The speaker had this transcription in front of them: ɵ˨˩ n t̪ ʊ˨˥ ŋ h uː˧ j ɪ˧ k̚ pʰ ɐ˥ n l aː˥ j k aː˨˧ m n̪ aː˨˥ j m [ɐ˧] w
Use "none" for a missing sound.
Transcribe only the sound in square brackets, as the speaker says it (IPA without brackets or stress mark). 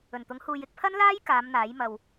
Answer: ɐ˧